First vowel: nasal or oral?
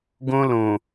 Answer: nasal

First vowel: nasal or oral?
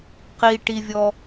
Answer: oral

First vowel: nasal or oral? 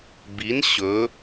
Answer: oral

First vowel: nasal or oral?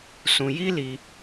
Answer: nasal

